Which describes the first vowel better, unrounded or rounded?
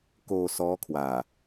rounded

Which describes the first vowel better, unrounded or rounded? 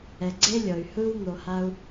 unrounded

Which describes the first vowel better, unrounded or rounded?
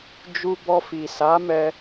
rounded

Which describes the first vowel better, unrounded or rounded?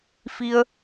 unrounded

